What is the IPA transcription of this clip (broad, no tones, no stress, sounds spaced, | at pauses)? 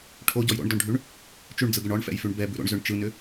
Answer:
ʈʰ o ɟ ɔ j ɾ o̰ ɳ d ɔ ɳ ɖʱ ʉ ɳ | t͡ʃ ʉ ɳ d͡z ɯ ɡ ʏ ɳ ɔ ɳ f ɛ̰ j f ʉ ɳ b ɛ b ʉ ɾ o̰ ɳ z ʏ ɳ t͡ʃ ɯ n ʏ